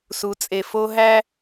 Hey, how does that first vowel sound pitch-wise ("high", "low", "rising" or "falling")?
rising